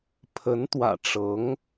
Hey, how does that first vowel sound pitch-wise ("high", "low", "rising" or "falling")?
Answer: rising